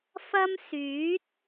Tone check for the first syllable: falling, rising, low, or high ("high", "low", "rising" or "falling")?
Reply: high